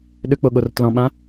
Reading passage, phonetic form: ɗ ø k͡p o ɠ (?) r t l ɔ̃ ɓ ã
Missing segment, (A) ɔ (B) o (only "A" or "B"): B